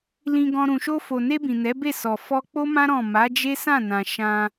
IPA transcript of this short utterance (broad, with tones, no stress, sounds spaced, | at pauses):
l ĩ˧ ɡ ɔ̃˧ ɾ ũ˨ ʃ o˧ f o˨ n e˧ b ĩ˨ n ɛ˨˦ b e˦˨ s ɔ˨ f ɔ˧ k͡p o˦ m ã˦ ɾ ɔ̃˦˨ m a˨˦ d͡ʒ e˦ s ã˦˨ n ã˨ ʃ ã˧